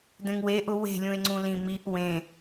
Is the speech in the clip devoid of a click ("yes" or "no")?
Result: no